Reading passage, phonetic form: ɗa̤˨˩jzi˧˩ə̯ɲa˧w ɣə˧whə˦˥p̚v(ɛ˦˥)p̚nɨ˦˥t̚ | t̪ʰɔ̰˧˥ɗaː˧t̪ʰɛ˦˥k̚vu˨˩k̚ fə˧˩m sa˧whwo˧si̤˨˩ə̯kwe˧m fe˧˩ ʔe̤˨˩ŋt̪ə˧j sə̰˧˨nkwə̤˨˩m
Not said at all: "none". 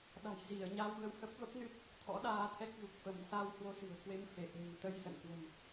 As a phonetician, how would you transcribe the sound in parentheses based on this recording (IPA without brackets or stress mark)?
ə˦˥